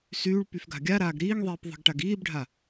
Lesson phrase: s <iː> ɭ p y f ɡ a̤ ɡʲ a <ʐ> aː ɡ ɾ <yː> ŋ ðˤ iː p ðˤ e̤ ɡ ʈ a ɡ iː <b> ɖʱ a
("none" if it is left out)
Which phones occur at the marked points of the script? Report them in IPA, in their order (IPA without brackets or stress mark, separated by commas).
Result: yː, ɾ, iː, b